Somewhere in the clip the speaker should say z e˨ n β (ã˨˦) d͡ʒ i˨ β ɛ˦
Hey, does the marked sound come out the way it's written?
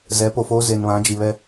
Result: yes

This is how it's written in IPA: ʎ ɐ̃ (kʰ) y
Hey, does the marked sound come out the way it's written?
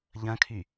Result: yes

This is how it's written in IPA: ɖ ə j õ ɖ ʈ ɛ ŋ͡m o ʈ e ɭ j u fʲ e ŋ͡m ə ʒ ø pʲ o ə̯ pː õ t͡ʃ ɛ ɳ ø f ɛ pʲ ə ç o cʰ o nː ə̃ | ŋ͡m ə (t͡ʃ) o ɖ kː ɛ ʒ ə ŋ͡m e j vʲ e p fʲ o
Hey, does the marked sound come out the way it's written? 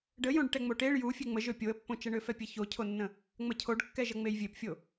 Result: no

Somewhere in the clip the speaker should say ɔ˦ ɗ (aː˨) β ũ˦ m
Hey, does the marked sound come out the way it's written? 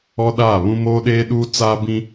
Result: no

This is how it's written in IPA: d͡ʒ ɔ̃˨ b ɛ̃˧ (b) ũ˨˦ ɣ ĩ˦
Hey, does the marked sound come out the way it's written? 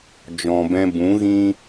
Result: yes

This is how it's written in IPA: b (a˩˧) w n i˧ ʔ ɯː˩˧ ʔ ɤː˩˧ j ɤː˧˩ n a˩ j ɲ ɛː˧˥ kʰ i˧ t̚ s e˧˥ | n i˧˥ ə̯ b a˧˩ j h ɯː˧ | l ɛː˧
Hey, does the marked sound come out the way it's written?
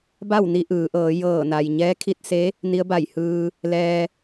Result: no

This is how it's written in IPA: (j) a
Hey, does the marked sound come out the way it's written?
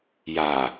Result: yes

